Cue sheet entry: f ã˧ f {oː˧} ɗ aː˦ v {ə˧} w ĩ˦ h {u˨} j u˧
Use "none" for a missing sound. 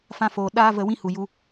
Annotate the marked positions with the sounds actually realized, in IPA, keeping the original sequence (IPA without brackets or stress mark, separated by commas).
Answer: oː˨, ə˧, u˨